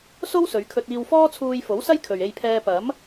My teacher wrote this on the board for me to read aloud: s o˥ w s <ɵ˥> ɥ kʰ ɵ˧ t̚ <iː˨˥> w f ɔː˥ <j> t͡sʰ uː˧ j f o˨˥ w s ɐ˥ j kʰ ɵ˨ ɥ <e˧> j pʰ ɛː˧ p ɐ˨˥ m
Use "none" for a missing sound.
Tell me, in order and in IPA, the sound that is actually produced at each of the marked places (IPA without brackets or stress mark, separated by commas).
ɵ˨˧, iː˧, none, e˧